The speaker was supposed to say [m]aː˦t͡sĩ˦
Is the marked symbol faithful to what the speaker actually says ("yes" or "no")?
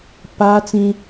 no